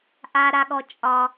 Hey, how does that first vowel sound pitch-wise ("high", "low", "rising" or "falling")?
high